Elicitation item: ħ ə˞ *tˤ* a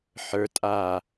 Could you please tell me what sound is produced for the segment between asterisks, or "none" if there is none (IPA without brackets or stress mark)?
tʼ